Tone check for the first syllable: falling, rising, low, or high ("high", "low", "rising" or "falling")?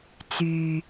low